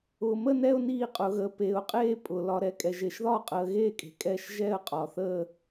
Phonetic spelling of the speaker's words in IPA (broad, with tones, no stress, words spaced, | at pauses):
ʊː˨mə˥˧nɛ˥˧ʊ̯ niː˥˧qʼʊ˨˦ɣə˨˦ peː˨ʊ̯qʼeː˥˧ pʼʊ˨ lɒ˨ɾɛ˨ kʼɛ˨ʒe˨ʃðɒː˥˧ qʼəː˨˦ɣeː˥˧kʼe̤˨ kʼɛː˥˧ʃ ʒɛː˥˧ə̯ qʼɒ˨θəː˥˧